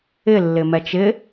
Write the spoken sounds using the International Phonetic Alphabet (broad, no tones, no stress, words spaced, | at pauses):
ɪlːɪmɛt͡ʃ ɪ